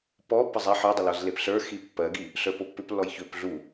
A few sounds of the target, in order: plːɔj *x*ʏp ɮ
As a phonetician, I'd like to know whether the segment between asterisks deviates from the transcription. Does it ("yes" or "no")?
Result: yes